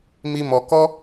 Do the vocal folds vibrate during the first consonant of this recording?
yes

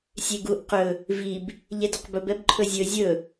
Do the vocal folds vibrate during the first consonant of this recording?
no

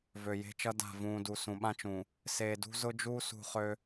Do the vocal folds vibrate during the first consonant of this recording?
yes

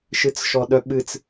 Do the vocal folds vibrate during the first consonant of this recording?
no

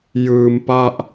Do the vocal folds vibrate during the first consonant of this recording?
yes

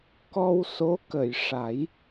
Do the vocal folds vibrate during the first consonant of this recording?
no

